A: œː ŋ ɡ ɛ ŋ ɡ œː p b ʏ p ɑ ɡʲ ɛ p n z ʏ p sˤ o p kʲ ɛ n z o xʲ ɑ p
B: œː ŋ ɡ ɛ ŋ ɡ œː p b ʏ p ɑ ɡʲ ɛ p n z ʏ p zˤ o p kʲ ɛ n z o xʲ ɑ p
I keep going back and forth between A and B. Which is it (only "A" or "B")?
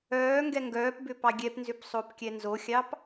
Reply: A